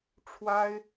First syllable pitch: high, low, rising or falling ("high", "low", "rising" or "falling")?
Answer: high